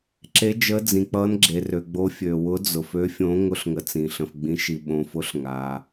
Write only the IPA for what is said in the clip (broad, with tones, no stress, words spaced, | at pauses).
ǁe˨˥ d͡ʒə˨˥d͡zĩ˩k͡pʌ˨˥nɡ͡ǁe˩ rø˩ɡ͡bo˨˥ fʲø˩wʊ˨˥d͡zʊ˩f ø˨˥fʲõ˨˥ ŋʊ˨˥ɬŋə˩ t͡sĩ˩ɬə̃˩fɡ͡bĩ˨˥ ʃi˩ɓõ˩fʊ˨˥ɬ ŋa˩